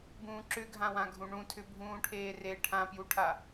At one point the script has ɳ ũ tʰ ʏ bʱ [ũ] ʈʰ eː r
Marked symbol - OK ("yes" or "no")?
no